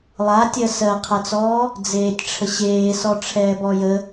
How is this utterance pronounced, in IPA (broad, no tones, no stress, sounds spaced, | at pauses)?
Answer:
lˠ a tʲ ɜ s ɜ qʰ ɐ t͡s ɔː | d͡z eː tʲ ʈ͡ʂʰ ə ɕ eː s ɔ ʈ͡ʂʰ ɛː b ɔ j ə